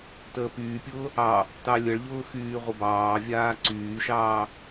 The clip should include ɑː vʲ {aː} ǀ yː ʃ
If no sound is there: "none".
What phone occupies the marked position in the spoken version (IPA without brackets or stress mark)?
aː